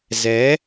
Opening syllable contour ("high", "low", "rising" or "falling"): rising